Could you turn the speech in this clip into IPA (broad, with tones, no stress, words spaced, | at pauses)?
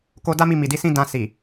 ko˧da˦mi˧ mi˨di˨˦sĩ˦ dã˧ si˨